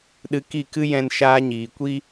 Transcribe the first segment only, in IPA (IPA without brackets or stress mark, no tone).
ɗ